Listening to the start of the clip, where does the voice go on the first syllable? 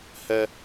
high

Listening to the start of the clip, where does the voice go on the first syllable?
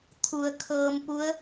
low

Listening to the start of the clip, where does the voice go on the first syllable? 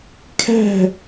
falling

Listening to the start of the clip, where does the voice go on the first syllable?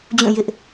falling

